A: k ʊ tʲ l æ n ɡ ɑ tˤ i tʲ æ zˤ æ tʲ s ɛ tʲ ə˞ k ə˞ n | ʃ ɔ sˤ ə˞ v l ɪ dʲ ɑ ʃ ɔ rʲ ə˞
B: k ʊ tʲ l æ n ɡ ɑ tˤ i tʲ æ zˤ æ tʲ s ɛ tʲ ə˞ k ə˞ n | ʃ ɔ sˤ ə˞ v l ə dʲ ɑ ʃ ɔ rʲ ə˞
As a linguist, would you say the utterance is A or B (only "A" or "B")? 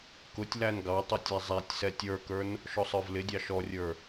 A